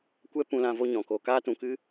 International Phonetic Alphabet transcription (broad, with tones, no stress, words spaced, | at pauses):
kʷɛ˦pũ˧lã˧ vo˧ɲɔ̃˨ koː˨kaː˧tũ˨kɨ˧